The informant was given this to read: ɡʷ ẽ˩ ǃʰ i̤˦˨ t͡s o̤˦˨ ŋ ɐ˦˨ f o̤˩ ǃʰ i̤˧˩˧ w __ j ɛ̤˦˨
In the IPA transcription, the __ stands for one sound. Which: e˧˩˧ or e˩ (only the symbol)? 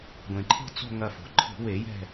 e˧˩˧